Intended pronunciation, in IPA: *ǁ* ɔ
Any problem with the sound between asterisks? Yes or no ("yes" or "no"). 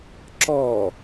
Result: no